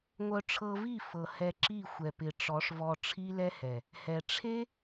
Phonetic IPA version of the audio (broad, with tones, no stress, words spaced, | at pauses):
ŋʷœ˧ʈ͡ʂʰɤ˧vi˦˨ fɤ˨hɛ˧ ǁi˦˨xʷɛ˨pɪ˨ ʈ͡ʂɔ˨˦ʂvɔ˧ ʈ͡ʂʰi˦lɛ˦hɛ˨ | hɛ˨ ʈ͡ʂʰe˦